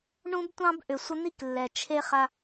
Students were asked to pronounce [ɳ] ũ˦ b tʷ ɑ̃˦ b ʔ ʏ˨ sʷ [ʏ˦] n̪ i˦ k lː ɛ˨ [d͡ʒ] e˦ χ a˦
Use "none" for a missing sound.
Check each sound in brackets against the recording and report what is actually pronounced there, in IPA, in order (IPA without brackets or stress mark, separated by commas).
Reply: ɳ, ə˦, t͡ʃʰ